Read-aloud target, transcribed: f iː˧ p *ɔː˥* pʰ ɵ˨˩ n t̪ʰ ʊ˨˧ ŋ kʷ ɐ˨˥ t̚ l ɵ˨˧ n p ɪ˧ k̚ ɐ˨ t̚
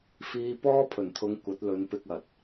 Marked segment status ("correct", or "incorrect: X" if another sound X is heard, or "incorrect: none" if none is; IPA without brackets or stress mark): correct